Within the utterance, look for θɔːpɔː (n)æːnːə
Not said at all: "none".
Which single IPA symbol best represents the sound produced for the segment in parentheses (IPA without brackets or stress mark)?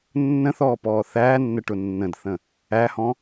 θ